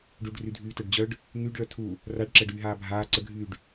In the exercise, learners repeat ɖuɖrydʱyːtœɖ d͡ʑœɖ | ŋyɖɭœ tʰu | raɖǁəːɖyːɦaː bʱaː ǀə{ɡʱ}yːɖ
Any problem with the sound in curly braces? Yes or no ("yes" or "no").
no